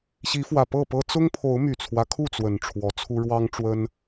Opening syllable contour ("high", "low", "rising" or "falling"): rising